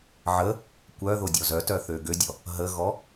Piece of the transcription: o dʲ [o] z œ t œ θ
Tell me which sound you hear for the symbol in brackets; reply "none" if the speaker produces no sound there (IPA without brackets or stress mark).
ɔ